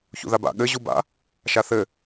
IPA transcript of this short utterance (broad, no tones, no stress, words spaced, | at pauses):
çṵðaba̰ ɠɘ ʑuba̰ | ʃaθɘ